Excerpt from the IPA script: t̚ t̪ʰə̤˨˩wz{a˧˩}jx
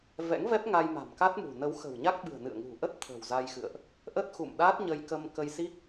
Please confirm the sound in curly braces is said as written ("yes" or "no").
no